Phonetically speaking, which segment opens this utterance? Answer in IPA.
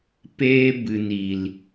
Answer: p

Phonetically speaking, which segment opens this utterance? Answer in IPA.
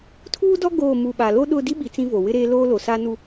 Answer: tʰ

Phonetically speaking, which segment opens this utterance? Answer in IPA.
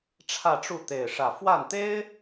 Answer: ʈ͡ʂʰ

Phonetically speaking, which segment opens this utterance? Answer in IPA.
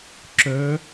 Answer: ǁ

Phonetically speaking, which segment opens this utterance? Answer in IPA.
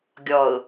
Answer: ɡʲ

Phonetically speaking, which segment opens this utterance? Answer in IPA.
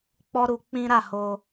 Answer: k͡p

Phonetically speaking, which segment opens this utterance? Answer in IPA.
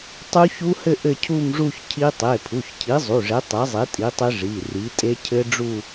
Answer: tˤ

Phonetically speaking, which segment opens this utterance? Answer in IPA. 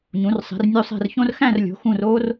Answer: ɲ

